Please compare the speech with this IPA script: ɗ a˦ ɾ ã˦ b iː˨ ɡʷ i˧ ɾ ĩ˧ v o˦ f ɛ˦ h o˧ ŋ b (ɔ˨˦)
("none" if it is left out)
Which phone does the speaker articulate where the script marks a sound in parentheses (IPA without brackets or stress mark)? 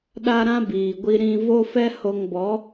ɔ˨˦